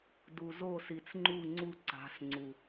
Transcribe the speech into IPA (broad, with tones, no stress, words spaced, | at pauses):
du˨zo˦˨si˨t͡sŋ͡ǃu˦˨ ŋ͡ǀu˦ ǀa̤˨˦sŋ͡ǀu˨